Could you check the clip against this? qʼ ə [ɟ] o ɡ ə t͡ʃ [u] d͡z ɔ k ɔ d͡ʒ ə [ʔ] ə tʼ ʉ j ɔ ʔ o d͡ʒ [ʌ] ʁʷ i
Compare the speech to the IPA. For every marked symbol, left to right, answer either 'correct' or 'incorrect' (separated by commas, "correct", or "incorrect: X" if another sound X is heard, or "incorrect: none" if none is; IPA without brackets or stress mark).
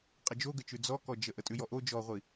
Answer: incorrect: d͡ʒ, incorrect: ʉ, correct, incorrect: ɔ